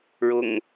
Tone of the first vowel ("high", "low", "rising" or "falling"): low